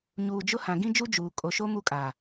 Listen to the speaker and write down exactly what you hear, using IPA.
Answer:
ɲ uː˨ d͡ʒ ʊ˦ h ã˨ ɡ ĩ˦ d͡ʒ u˦ d͡ʒ uː˨ kʼ o˨ ʃ o˦ m u˦ kʼ a˨

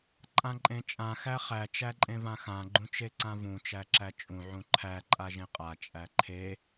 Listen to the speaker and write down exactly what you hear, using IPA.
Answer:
ǃʼ ã ǃʼ ẽ t͡ʃʼ ã x æ χ æ t͡ʃ æ ǃʼ ẽ v ã x ã ɡ͡ǃ ũ t͡ʃ e ǀ ã v ũ t͡ʃ æ ǁ æ t͡ʃʼ ũ ʕ ũ ǃʰ æ ǃʼ a ʒ ẽ qʼ a t͡ʃʼ æ ǃʰ e

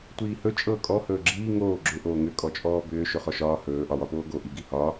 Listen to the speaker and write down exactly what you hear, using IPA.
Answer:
tʷ iː h ɵ t͡ʃʼ ɤ kʼ ɔ h ɵː ɡ͡ǁ iː ŋ oː ɡ͡ǁ ʏ ʔ oː ŋ ʏ kʼ ɔ t͡ʃʼ ɔː b ʏː ʃ ɵ χ ɔ ʃ ɒː h ɵː ʔ ɒ w ɒ p oː ɡ o ʔ i ɡ i h ɒ

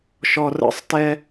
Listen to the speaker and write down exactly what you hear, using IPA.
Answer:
ʃ ɔ r ə̰ sˤ t ɛ

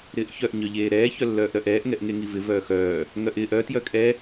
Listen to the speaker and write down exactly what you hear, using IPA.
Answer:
ɾ ɪː ʔ ç œ ʔ ɲ œ ʎ eː ɾ ɛː ç œ lː œː ʔ ɾ œ ʔ ɛː ʔ ŋ ɛ ʔ ŋ e ŋ i v ɪ v œː x œː | ŋ œ ʔ ɪː ʔ œ t j œ kʼ ɛ

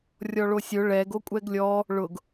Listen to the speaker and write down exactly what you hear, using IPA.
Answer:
rʲ ɔ ɭ o sʲ ʊ ɭ ɛ ɡ o kʷʼ ɛ ɡ lʲ ɔ | ɭ ʊ ɡ

